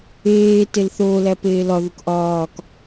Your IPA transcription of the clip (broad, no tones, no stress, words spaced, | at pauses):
eːtel θoːlæ peːlɒðuk ʔɒːk